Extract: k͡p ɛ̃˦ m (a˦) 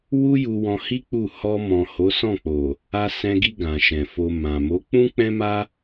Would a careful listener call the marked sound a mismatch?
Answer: no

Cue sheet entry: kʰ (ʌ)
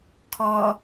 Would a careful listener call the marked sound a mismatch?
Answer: yes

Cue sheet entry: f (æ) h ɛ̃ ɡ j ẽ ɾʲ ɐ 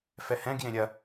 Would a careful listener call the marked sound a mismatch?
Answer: yes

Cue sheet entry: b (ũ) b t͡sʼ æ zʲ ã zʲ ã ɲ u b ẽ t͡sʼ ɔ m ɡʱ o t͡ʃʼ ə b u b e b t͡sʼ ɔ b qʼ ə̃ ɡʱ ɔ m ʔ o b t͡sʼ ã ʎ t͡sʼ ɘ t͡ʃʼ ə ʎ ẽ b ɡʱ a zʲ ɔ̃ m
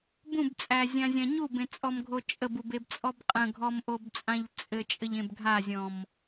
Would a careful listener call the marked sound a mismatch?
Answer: no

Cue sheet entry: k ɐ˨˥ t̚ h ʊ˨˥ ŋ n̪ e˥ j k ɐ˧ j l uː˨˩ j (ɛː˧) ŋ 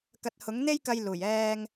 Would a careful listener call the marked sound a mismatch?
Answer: no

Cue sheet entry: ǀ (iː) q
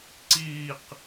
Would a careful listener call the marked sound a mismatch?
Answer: no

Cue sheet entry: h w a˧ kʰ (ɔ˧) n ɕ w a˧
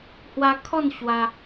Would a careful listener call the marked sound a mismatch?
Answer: yes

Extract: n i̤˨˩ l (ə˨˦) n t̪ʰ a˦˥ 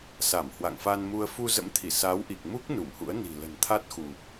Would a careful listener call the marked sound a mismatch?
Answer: yes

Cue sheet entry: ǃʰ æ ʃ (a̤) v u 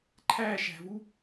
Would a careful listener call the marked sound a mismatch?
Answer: yes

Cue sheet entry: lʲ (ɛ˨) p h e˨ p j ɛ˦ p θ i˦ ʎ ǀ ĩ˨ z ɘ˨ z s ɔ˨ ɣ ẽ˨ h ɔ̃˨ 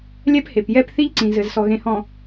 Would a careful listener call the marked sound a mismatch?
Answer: yes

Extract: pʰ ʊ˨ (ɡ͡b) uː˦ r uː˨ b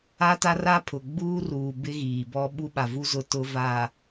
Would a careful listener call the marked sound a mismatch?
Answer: no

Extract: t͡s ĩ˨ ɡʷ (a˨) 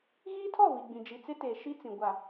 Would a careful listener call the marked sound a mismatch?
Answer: no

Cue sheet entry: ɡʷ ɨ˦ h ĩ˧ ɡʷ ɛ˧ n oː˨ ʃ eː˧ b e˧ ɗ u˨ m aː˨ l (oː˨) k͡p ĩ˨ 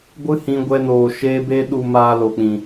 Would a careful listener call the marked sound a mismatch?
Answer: yes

